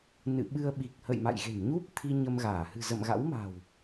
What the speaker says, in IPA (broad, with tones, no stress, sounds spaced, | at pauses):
n ɨ̰˧˨ ɓ ɨ˧ ə̯ ɓ i˨˩ k̚ h ə̰˧˨ j m a̰˧˨ j ɣ e̤˨˩ n ɲ u˦˥ p̚ t̪ʰ i˧ ɲ ə˧ m ɣ aː˧˩ h ɨ̤˨˩ z ə̰˧˨ m ɣ a̰˧˥ w m a̤˨˩ w